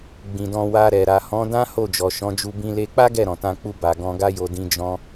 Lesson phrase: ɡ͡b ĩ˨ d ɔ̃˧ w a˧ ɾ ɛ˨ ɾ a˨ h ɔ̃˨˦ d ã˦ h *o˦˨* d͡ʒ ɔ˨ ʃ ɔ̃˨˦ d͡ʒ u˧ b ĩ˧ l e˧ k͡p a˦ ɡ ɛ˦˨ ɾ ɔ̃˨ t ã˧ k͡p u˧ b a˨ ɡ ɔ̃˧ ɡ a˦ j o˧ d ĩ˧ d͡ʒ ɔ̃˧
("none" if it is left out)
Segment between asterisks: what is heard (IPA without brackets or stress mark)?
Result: o˦˨